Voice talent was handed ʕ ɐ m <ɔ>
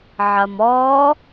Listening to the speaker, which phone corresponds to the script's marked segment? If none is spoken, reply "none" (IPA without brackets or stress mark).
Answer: ɔ